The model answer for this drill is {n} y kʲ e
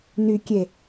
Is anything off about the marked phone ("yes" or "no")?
no